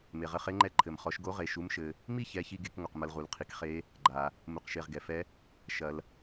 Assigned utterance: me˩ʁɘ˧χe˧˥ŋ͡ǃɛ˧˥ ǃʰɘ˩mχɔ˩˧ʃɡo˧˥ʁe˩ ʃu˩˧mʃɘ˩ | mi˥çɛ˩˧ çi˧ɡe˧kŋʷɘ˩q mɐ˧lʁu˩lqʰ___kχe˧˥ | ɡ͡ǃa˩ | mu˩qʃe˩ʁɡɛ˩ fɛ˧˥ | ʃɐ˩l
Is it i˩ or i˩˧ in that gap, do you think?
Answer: i˩˧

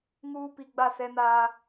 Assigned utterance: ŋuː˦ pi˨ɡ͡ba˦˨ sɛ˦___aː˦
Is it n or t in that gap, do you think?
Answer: n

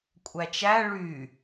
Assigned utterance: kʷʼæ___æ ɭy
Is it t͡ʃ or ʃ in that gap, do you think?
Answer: t͡ʃ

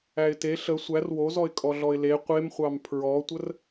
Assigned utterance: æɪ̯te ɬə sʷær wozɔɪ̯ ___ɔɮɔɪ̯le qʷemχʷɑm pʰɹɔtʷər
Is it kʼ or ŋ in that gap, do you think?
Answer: kʼ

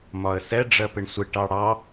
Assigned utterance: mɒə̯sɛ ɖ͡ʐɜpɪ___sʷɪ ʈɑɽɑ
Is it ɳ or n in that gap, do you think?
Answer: ɳ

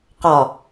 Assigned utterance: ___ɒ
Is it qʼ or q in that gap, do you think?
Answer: q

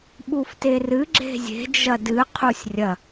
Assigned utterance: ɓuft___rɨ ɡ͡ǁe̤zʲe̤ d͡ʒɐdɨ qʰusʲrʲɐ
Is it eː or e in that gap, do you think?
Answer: e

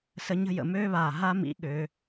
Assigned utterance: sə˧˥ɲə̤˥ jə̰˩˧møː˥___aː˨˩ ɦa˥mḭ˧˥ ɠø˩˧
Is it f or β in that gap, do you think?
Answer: β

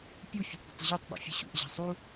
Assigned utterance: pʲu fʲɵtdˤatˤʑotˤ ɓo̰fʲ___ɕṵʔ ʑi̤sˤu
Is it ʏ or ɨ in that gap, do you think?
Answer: ɨ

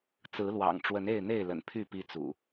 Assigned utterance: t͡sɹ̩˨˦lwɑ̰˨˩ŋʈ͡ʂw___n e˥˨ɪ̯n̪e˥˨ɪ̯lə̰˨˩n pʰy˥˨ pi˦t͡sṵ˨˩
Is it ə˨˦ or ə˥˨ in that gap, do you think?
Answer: ə˨˦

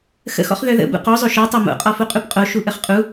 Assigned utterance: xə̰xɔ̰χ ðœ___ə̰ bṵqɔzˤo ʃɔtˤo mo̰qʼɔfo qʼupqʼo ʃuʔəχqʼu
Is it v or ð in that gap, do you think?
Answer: ð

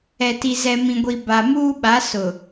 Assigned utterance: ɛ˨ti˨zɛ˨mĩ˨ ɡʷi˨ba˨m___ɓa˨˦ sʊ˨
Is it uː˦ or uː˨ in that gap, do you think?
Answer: uː˦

